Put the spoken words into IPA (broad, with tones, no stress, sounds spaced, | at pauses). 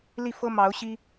l i˥˨ f ɤ˦ m ɑ˨˦ ʊ̯ ɕ i˦